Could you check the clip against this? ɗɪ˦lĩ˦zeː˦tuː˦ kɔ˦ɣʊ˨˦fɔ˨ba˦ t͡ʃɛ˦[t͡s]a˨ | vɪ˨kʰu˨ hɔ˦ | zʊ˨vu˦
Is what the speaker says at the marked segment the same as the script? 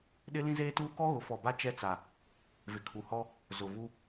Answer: yes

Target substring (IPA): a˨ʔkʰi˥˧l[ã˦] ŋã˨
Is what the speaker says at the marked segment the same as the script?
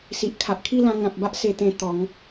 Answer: no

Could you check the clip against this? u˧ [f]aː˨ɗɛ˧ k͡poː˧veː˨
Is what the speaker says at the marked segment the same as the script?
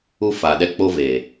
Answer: yes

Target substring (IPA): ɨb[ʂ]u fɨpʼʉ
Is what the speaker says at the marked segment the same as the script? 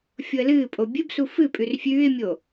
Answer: no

